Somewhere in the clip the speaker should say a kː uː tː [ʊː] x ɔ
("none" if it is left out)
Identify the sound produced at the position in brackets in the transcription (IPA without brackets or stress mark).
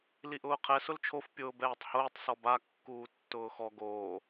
ʊː